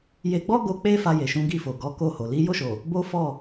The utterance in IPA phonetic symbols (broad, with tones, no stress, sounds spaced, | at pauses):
j e˧ ɡ͡b ɔ˦ ɡ o˧ k͡p e˦ f a˧ j e˨ ʃ ũ˨˦ ɡ i˦˨ f o˨ ɡ ɔ˨˦ k o˦˨ h o˨ l i˨˦ j o˦˨ ʃ o˨ | b o˦ f ɔ˦˨